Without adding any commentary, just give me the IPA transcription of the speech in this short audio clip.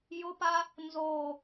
j ʊ p a | n z o

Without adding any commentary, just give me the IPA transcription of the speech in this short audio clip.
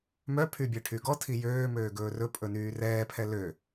m œ pʰ y bʲ ɛ ʈʰ y ɡ ɔ tʰ i j øː m øː ɡ ɵː r ɵ pʼ ɵ n yː r ɛː pʰ ɛ l ø

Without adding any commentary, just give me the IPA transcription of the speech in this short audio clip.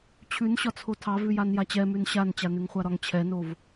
t͡ɕʰ ʉ n ɕ ɒ t͡sʰ o tʰ ɑ v ʉ j a n j a t͡ɕ ɛ m ʉ n ɕ a n t͡ɕ a n ʉ ŋ χʷ a ɾ ɒ ŋ t͡ɕʰ ɛ n o v

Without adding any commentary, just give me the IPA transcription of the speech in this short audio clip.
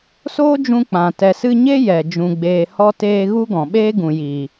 s oː˦ d͡ʒ ũ˧ k͡p ã˨ t ɛ˨ s ɨ˧ ɲ e˦ j ɛ˨ d͡ʒ ũ˨ ɡ͡b eː˨ h ɔ˧ t eː˧ ɣ u˦ ɡ ɔ̃˨ ɓ eː˦ ɡ ũ˨ j i˨

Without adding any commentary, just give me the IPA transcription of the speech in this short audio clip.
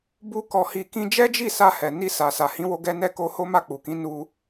b u˦ k ɔ˧ h i˧ k ĩ˧ d͡ʒ ɛ˦ d͡ʒ i˦˨ s a˧ h ɛ˨ n i˧ s a˨ s a˨ h ĩ˨˦ w o˦ ɡ ɛ˦ n ɛ˦˨ k o˧ h o˦ m a˦˨ k͡p u˨ k ĩ˨˦ n u˧

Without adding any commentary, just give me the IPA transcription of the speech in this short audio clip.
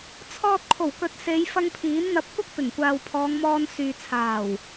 t͡sʰ ɔː˧ t̚ kʰ o˨˩ w k ɵ˨˥ t̚ s e˨˧ j f ɐ˧ ŋ pʰ iː˨˥ n n̪ ɐ˧ p̚ kʷ ɐ˥ k̚ p ɪ˨˩ ŋ kʷ aː˨ w pʰ ɔː˨˧ ŋ m ɔː˧ n s yː˨ t͡sʰ aː˨˩ w

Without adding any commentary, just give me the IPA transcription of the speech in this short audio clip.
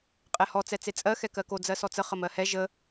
qʼ ɛ h ɔ t͡s ɛ t͡s e t͡sʼ ɜ x ɛ k ɜ k o d͡z ɜ s ɔ t͡s ə χ ə m ɜ h ɛ ʒ ə

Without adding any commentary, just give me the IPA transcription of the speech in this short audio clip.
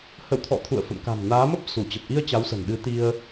h ə̰˧˨ w t̪ʰ ɔ̰˧˨ t̪ʰ ṵ˧˨ ə̯ f ə̰˧˨ m k a̤˨˩ m n aː˨˦ m ə˦˥ p̚ s u˧˩ t͡ɕ ə˨˩ p̚ ʔ i˧ ə̯ t͡ɕ a˨˦ w s ə̤˨˩ n ɗ ɨ˨˦ t̪ i˧ ə̯

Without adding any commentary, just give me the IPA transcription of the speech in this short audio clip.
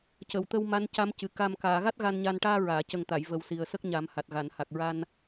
c ə˨˩˨ w t̪ ə˧ w m a˧˥ n c a˧˥ m c ɨ˨˩ k a˨˩ m k aː˨˩˨ ɣ a˦˥ t̚ ɣ a˧ n ɲ a˧ n ʈ aː˧ ɹ aː˨˩˨ c ə˨˩ ŋ t̪ a˨˩˨ j v ə˨˩ w s i˨˩ ə̯ s ə˦˥ k̚ ɲ a˨˩˦ m h a˨˩ t̚ ɣ a˨˩˨ n h a˨˩ k̚ ɹ a˧ n

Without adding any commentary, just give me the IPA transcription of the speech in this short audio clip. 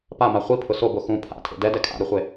p a m a χʷ i pʰ ʊ s o b o x ũ pʰ a̰ tʰ ḛ d ɛ d ɛ kʰ a̰ ɾ u χʷ e

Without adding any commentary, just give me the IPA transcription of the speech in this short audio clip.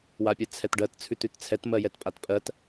w a pʲ ɛ t͡sʰ ɛ t ɖ ɜ t t͡sʰ ʉ t ʉ t t͡sʰ ɛ t m ɜ j ɛ t pʼ a t pʼ ɜ t

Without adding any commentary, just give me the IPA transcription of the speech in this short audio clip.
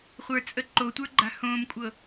χʷ ə˞ t͡sʼ ə ǃ o tʷ ə˞ ɡ͡ǃ a̤ h õː m kʷʼ ɤ

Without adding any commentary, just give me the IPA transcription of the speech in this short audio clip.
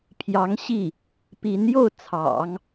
pʰ j ɑ˧˥ ŋ ɕ i˥˩ | p i˧˥ n j o˥˩ ʊ̯ t͡sʰ ɑ̰˨˩˦ ŋ

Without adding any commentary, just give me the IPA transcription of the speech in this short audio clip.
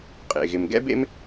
qʼ ḛ˩ ɣ ɪ˩ m ɡ ɛ̰˥ b ḛ˥ m

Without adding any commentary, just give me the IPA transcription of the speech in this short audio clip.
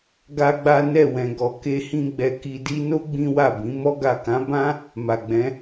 ɡ a˦ ɡ͡b a˦ n ɛ˦˨ w ɛ̃˨ ɡ ɔ˨ k e˧ h ĩ˧ ɡ͡b ɛ˨ k i˨ d i˧ n o˦ ɡ͡b ĩ˦ w a˦˨ b ĩ˨˦ m ɔ˧ ɡ a˨ k ã˨˦ b ã˦ | m a˨ ɡ͡b ɛ̃˨˦

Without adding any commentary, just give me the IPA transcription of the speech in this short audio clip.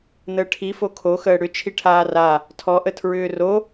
n̪ əː ʈʰ i f o kʰ o x əː ɽ ʏ t͡ʃʰ i ʈʰ aː r a | tʰ ɔ ʔ ə tʰ ɹ ʏː r o

